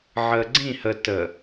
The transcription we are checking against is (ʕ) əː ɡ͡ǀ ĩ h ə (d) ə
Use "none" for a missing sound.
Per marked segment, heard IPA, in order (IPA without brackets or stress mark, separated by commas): ʕ, t